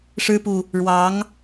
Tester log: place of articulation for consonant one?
retroflex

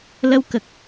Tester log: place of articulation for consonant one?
alveolar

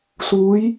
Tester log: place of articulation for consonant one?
alveolar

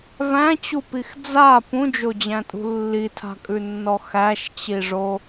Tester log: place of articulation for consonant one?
labial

